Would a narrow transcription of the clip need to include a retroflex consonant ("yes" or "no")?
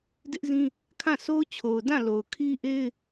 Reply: no